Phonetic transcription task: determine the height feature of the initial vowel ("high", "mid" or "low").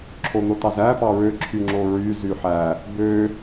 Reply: mid